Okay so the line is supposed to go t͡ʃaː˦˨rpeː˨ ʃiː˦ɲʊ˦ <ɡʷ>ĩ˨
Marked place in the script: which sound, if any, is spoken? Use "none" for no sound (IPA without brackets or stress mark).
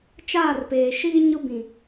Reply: b